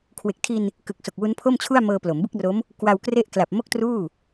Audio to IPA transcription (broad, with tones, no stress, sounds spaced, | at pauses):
kʰ w e˨˩ k̚ tʰ i˧ n | k ɯ˨˩ k̚ s o˨˩ k̚ w u˦˥ n pʰ o˥˩ m t͡ɕʰ u˥˩ a̯ m ɤː˧ p l o˩˦ m b ɯ˥˩ k̚ r o˦˥ m | k w a˧ w k r e˥˩ ʔ k l a˨˩ p̚ m o˥˩ k̚ t r uː˥˩